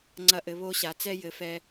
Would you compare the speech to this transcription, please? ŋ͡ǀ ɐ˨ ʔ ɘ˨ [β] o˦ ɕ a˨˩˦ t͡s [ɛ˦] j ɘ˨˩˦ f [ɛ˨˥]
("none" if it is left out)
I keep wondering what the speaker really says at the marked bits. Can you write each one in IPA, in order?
β, ɛ˦, ɛ˨

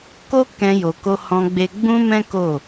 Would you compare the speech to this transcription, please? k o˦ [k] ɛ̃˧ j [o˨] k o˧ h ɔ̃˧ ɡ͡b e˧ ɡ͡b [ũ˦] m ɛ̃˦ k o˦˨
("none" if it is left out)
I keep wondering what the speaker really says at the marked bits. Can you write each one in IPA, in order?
k, o˨, ũ˦

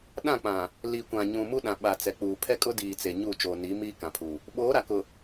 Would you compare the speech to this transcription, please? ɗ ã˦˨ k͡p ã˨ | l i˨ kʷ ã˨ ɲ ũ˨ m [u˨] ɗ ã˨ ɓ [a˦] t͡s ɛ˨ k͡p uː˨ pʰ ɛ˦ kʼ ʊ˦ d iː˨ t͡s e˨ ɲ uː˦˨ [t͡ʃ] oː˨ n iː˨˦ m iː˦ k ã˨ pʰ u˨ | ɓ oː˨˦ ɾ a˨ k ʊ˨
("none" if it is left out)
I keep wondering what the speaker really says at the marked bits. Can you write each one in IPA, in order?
u˦, a˨, t͡ʃ

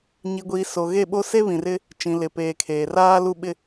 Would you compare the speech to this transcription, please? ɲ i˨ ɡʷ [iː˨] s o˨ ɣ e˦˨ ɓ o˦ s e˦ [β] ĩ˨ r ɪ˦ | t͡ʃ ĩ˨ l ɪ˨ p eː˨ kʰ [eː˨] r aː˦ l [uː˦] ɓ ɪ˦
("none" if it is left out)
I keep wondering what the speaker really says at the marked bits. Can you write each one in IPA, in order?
iː˨, β, eː˨, u˦

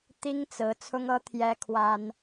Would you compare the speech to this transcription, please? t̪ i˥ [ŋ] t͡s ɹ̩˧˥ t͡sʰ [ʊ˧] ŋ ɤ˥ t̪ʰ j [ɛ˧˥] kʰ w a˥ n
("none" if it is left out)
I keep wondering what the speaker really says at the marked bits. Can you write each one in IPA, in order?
ŋ, ʊ˥, ɛ˥

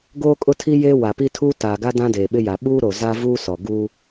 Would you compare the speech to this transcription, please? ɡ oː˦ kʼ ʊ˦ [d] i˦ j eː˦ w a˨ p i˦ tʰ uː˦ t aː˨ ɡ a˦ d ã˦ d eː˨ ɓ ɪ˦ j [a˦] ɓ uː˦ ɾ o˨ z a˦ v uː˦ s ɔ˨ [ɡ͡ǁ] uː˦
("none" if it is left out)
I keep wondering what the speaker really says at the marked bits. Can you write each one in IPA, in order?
tʰ, a˨, ɡ

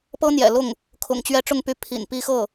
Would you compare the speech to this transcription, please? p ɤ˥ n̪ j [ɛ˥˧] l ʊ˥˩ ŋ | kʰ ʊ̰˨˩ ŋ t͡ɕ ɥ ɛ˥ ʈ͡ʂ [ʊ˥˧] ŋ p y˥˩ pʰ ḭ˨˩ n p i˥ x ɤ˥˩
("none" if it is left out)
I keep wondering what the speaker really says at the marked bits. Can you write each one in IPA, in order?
ɛ̰˨˩, ʊ˥˧

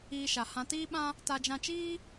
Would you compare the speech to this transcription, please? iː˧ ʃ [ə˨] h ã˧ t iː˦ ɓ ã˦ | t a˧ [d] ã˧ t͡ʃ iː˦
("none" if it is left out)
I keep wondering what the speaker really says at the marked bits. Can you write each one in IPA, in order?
a˨, d͡ʒ

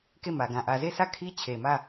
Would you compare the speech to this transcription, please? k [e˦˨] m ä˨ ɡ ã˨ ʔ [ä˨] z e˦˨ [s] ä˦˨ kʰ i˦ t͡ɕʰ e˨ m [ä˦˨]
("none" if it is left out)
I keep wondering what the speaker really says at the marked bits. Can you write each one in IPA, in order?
e˦˨, ä˨, s, ä˦˨

